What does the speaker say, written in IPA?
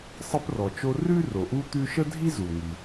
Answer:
sˤə˦prɔ˩t͡ʃo˦ rʉ˥ro˩ʔu˦ t̪ʉ˦ʃə˥dʱi˥ zu˩ŋi˩

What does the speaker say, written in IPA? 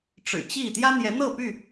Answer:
ʈ͡ʂɻ̩˨˩t͡ɕi˥˨ t̪jä˦n̪jɛ˨˦n̪ɤ˥˨py˥˨

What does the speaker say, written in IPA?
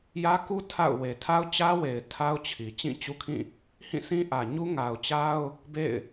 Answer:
jä˦ku˦ tʰa̰˦˨ʊ̯we˨ tʰa˦ʊ̯t͡ɕä˦we˨ɪ̯ tʰa˦ʊ̯t͡ɕʰi˨ t͡ɕĩ˦˨t͡ɕu˦kʰĩ˦˨ | hĩ˦˨sĩ˦ʔä˨ ɲu˦ŋa˨ʊ̯t͡ɕa˦ʊ̯ | bḛ˦˨ɪ̯

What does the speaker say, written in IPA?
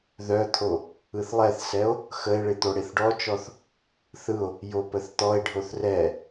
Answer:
ðœt̪ʰo | ɯθlˠɛθsɛo̯ | xəe̯ɭɪ t̪oɽeθɖɔt͡ʃɔθ | θɯo̯ | jopəθt̪ɔe̯ɖʱoθ rɛ

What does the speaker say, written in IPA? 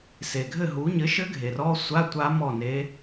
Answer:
se˩ɡʱɘ˥˩ɦu˩˥ ɲɘ˩˥ʃɘ˧˥ ɡʱe˩rɔ˧˥˧sʷa˧˥˧ tʷa˧˥ mɔ˥˩ne˧˥

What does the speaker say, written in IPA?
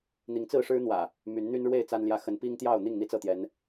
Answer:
n̪i˨˦ŋt͡sɹ̩˥˨ʂɻ̩˦n̪wä̰˨˩ | my˨˦nn̪y˦nɻwe˥˨ɪ̯ t͡sa˦nljä˥˨ xə˨˦npi˦ŋt̪jɑ˥˨ʊ̯ n̪i˥˨ŋn̪i˥˨t͡sɤ˥˨t̪jɛ˨˦n

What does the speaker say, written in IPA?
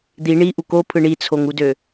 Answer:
d̪i ɳiʔu kopʰɯ ɳit͡sʰoŋudø

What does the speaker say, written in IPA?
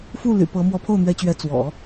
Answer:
fu˥˩ ly̰˨˩pɤ˧˥ mwɔ˧˥pʰo˥˩ʊ̯n̪ɥɛ˧˥t͡ɕɥɛ˧˥ t͡swɔ̰˨˩˦

